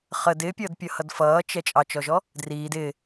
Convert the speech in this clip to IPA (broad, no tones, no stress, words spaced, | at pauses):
χəd ɪːpʲʌːdpʲʌhʌd fʌːt͡ʃɛ t͡ʃʼɑt͡ʃɔʒɔ | driːd ɪː